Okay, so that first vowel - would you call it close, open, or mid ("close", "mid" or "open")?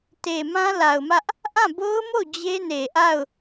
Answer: mid